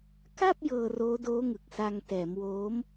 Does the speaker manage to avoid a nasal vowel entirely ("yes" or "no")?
yes